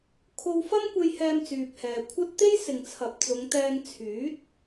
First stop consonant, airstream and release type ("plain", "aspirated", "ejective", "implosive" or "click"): aspirated